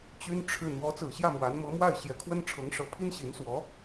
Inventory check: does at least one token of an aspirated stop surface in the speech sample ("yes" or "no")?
yes